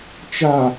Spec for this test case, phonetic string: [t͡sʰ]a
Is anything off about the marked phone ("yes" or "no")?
yes